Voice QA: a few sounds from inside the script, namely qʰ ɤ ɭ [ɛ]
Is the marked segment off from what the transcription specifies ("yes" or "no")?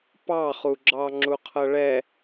no